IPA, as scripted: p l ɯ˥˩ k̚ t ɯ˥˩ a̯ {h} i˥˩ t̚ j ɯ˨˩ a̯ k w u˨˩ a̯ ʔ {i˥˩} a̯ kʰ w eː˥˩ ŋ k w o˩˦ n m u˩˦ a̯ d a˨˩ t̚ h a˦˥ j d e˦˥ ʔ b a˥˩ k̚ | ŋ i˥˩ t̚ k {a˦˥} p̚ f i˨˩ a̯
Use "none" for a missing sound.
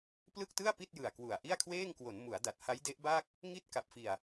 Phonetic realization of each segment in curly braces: p, i˥˩, a˨˩

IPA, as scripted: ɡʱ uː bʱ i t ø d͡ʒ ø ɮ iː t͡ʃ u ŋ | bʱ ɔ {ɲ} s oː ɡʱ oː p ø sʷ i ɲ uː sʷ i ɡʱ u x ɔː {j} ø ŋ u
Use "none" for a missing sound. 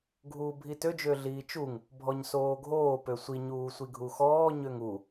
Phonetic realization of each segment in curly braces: ɲ, ɲ

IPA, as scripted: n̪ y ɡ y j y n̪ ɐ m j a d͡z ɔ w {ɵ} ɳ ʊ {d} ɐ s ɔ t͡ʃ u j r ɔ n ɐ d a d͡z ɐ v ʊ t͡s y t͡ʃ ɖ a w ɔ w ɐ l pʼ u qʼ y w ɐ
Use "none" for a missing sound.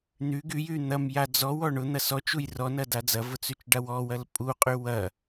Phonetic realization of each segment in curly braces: ɔ, n̪

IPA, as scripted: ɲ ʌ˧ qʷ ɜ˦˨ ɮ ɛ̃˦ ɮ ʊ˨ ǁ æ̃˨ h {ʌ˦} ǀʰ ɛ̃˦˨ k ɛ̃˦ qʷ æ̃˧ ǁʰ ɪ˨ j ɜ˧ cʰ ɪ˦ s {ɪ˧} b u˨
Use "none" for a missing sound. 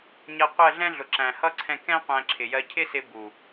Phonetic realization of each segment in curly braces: ʌ˦, ɪ˧

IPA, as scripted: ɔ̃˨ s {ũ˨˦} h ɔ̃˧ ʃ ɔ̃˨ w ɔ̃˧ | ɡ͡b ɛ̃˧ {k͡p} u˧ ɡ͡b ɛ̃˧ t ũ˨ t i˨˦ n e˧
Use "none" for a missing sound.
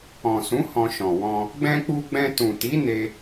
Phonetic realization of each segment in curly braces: ũ˨˦, k͡p

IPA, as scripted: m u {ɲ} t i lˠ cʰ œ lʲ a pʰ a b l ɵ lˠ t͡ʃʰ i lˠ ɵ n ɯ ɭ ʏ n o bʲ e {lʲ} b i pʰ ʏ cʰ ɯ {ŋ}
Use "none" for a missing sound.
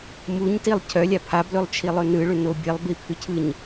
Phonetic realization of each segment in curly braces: ɲ, lˠ, ɲ

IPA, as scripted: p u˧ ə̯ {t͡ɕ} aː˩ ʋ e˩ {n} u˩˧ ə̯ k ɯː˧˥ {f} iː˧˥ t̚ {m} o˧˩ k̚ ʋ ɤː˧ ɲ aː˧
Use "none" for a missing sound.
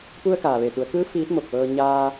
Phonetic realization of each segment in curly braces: k, t̪, f, m

